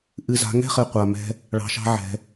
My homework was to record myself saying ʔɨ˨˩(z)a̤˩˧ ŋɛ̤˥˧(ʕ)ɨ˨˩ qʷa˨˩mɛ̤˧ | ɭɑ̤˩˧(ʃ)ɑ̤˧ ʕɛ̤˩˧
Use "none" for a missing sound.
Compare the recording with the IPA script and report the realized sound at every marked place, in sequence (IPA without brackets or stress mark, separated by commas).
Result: z, χ, ʃ